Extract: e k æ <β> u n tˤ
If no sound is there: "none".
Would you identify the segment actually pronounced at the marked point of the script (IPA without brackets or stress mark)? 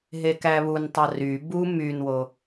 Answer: β